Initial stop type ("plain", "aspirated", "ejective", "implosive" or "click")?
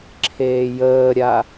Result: click